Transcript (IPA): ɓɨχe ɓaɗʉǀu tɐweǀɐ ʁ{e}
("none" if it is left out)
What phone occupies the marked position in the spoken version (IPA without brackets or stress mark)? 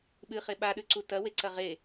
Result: e